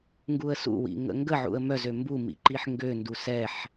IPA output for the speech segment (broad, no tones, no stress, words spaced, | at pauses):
ŋɡuə̯sṵwḭ ŋə̰ŋɡəʕṵə̯ mœzø mbumḭ ǃiħŋɡøndu sɛħ